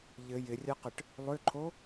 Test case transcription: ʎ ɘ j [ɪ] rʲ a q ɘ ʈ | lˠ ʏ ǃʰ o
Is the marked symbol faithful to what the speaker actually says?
yes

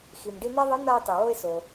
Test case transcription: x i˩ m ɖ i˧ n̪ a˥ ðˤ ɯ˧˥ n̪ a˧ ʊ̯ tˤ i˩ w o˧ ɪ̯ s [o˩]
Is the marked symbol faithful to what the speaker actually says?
yes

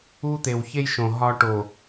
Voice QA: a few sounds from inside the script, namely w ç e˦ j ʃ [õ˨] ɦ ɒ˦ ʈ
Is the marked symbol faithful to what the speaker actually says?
yes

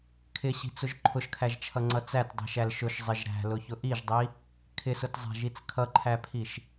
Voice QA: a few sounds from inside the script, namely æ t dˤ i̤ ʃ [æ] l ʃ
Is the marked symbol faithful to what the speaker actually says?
yes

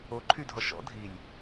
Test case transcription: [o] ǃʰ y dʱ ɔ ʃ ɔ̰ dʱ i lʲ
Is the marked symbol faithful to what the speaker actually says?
yes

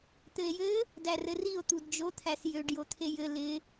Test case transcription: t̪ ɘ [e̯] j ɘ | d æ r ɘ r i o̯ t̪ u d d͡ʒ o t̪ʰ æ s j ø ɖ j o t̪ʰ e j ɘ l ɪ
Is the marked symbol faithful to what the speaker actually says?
yes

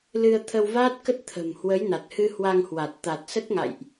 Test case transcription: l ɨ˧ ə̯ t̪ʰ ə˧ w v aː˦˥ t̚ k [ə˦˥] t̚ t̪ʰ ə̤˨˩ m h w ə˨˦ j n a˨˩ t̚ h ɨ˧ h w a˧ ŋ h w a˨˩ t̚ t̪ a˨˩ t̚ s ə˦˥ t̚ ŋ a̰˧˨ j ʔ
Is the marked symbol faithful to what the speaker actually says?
yes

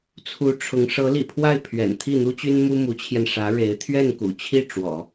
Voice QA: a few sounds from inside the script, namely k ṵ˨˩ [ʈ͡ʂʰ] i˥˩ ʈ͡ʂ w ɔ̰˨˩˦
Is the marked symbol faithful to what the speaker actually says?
no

